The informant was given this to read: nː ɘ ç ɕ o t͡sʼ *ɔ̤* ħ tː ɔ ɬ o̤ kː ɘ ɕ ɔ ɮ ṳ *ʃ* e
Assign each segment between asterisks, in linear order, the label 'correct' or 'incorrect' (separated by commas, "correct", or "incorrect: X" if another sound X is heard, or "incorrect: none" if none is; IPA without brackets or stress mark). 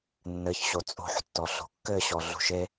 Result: incorrect: o̤, correct